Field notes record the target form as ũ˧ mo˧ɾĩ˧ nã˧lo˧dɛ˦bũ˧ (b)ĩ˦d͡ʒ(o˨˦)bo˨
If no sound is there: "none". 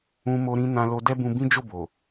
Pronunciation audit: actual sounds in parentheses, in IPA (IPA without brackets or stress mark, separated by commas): b, o˦˨